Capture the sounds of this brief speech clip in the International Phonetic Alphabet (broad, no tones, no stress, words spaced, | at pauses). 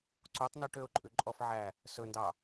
ǀutˤny ʈøʊ̯ǃʼʉǃʼɔfʕæ | sɵndɑ